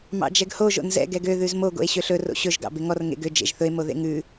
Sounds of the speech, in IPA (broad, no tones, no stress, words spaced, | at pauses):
mɑ̰d͡ʒɛɡho ʒo̰nzɛ̰ ɡɛɡø ðʉzmo ɡo̰e̯ɕøɬɵ ro̰ɕɵʒ ɡɑ̰beŋɔr ŋḛɡø d͡ʒḛʒθɵe̯ moðḛŋʉ